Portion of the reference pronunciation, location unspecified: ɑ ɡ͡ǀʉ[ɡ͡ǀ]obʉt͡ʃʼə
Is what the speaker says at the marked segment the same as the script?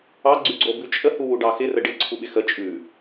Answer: yes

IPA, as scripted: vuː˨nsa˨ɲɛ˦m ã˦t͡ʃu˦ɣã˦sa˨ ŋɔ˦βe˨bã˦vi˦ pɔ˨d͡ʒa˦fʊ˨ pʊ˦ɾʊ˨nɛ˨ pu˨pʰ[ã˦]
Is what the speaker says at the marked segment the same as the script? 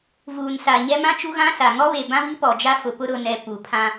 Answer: yes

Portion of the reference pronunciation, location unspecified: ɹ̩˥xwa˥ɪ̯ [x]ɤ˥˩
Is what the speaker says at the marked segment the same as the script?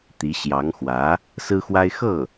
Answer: yes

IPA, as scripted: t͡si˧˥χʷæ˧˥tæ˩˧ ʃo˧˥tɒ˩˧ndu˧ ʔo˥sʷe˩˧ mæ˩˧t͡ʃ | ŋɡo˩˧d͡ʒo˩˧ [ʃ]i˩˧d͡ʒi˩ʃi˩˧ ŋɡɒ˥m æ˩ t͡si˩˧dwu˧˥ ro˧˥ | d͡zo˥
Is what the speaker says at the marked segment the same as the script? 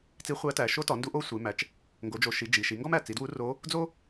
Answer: yes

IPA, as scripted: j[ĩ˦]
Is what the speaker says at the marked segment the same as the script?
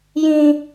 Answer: yes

